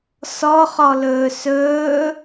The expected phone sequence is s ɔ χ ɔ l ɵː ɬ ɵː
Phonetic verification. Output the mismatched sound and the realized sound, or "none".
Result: ɬ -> s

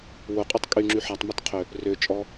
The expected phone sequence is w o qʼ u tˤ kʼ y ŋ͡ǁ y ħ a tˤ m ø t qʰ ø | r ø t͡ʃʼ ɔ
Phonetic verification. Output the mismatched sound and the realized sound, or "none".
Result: none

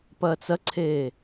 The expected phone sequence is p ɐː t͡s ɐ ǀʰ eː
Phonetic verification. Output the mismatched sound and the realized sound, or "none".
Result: none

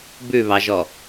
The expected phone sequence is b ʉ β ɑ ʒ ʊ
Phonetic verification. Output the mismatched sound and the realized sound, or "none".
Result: ʊ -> ɔ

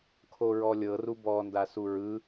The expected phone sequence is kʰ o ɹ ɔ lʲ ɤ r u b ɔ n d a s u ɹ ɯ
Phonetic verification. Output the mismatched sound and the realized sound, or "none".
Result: none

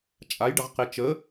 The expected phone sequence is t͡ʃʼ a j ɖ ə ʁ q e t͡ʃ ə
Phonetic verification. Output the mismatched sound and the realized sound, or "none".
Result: none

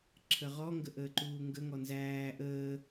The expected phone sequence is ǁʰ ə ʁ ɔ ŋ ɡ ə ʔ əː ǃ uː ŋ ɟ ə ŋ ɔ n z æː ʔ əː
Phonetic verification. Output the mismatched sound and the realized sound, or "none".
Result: ɟ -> ɡ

